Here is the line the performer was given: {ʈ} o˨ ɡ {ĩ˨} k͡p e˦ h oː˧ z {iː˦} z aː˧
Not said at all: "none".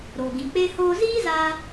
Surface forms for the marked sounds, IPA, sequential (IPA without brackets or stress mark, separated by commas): ɾ, ĩ˨, iː˦